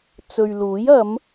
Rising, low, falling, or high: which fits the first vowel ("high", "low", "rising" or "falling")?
low